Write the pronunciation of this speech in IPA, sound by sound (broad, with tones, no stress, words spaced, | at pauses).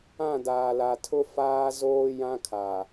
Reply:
ã˦˨daː˨la˨tʰʊ˦ faː˦zoː˦jã˦kʰa˨